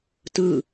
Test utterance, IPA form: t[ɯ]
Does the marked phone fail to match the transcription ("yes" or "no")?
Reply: no